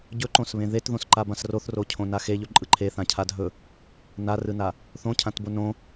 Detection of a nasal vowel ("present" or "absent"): present